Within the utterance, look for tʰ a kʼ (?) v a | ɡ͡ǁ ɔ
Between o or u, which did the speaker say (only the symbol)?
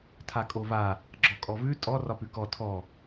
o